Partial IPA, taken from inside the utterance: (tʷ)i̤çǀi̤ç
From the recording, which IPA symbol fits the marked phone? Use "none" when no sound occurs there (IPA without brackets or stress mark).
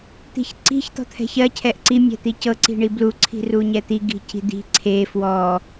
t̪